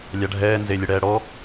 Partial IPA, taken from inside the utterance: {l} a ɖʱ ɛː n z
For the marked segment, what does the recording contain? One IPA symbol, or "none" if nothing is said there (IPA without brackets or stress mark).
lʲ